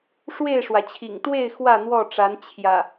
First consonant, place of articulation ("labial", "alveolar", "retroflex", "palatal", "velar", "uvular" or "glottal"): retroflex